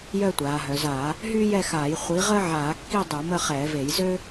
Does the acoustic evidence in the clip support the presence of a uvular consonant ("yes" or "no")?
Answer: yes